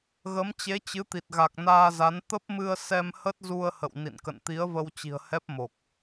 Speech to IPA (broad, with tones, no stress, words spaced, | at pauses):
ɣə˨˦mt͡ɕe˨˦t͡ɕɨ˨˦t̪i˨˩t̚ ɣa˨˩k̚naː˧za˨˦n t̪ə˦˥p̚mɨ˧ə̯ sɛ˧mhə˦˥t̚zu˧ə̯ hə̰˧˨wnḭ˧˨nkə̰˧˨n t̪i˨˦ə̯və˧wt͡ɕi̤˨˩ə̯hɛ˦˥p̚ mo˨˩k̚